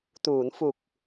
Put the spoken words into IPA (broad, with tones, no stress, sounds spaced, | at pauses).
t uː˩˦ n f u˨˩ k̚